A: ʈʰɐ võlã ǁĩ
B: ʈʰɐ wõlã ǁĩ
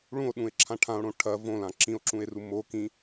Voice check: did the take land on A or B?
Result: A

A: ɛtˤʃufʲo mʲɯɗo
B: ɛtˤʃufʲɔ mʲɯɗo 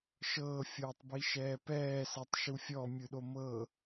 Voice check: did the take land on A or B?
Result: B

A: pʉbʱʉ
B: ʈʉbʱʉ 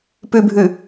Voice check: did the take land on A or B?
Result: A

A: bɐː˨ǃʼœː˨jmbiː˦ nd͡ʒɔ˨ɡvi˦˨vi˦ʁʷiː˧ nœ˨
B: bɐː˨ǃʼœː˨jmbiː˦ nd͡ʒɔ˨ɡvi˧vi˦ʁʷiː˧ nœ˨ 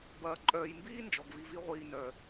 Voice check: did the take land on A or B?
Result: B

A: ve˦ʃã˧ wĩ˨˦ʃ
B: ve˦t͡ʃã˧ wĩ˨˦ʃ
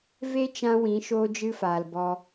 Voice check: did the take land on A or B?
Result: B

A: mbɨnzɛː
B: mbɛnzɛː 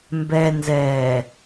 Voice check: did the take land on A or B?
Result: B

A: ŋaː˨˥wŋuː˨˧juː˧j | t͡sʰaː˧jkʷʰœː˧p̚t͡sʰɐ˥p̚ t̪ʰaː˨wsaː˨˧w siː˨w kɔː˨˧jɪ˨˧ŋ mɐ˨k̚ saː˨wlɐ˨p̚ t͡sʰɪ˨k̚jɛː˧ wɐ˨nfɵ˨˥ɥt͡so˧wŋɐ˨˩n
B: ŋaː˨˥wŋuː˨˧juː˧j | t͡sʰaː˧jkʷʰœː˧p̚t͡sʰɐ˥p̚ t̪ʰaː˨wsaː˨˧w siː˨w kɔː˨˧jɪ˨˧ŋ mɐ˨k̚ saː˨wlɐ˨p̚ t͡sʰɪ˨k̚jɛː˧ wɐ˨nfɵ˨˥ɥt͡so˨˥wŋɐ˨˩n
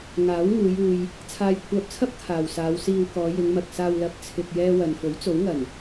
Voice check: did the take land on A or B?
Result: B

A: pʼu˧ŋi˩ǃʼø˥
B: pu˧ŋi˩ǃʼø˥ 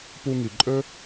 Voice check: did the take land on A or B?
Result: B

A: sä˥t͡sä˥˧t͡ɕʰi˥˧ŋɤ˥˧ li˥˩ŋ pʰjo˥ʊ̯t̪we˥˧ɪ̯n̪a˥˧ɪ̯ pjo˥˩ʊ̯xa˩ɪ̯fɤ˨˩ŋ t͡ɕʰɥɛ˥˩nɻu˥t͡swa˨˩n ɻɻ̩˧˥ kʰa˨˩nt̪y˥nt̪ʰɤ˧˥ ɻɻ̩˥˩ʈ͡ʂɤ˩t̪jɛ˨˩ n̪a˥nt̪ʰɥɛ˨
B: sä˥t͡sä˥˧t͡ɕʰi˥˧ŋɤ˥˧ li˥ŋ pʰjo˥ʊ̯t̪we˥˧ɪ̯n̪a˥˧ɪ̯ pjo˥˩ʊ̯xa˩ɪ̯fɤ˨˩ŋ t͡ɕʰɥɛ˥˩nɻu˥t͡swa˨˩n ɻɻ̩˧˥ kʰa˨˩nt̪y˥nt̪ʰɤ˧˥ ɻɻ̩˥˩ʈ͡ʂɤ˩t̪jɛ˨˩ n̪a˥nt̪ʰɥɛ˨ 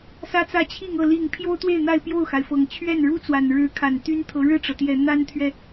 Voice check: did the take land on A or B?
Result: A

